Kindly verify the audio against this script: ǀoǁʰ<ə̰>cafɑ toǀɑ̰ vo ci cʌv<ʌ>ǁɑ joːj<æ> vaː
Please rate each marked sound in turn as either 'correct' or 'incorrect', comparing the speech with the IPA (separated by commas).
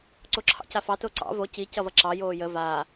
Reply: incorrect, correct, incorrect